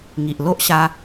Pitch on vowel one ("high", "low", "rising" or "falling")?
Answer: low